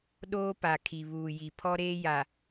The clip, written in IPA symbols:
ɗ oː˦ p a˨ kʰ i˨ β uː˨ j i˨ pʰ ɔ˦ ɾ eː˦ j a˨

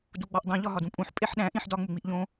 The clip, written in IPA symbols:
d u ɡ͡b ɒ ʔ dˤ ĩ ʎ ɒ ɦ ɒ d ũ pʼ ũ ħ pʼ e ħ ɗ æ̃ ʔ ĩ ħ d ɒ ŋ͡m u ŋ͡m i ʔ ʎ õ

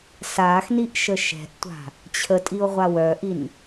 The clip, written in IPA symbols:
s aː x n i ʔ ʃ ə ʃ ɛ̤ ʔ tʷ a̤ | t͡ɕʰ ə tʼ i o̯ ʁʷ a w œ ʔ i n

